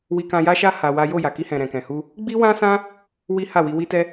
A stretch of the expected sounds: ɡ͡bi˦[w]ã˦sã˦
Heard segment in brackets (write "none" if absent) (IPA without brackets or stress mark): w